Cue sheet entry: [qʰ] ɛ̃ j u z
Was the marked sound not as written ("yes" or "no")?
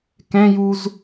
yes